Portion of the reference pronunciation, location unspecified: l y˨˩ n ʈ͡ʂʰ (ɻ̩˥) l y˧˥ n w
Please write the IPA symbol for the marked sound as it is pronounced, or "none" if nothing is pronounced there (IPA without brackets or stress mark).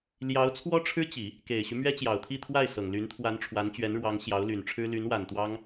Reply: ɻ̩˥